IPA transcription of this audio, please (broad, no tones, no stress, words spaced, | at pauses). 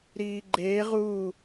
ɾiːɡ͡ǃeːʁ uː